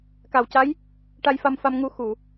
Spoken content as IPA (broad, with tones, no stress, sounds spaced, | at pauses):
k a˨˩ w c a˧˥ j | ʈ a˧ j f a˧ m f a˧ m ŋ u˧ x u˨˩˨